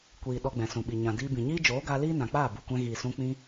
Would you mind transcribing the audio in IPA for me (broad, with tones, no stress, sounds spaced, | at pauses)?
kʷ iː˨ ɗ ɔ˧ ɡ͡b ɛ̃˨ s ũ˨ ɓ i˨ ɲ ã˨ d iː˧ b ĩ˨ ɲ iː˦ d͡ʒ oː˨˦ ɡ aː˧ l iː˦ n ã˨ k͡p aː˦˨ b u˨ kʷ ɛ̃˧ ɣ iː˨ s ũ˧ k͡p ĩ˧